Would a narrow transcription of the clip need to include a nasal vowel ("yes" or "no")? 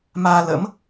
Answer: no